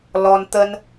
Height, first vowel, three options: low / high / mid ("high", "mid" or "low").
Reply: mid